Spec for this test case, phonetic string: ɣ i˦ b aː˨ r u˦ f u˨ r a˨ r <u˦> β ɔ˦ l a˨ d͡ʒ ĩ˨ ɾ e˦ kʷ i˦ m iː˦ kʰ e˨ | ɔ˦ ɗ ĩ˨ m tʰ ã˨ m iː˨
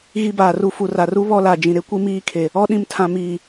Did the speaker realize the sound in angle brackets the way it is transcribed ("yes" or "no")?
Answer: yes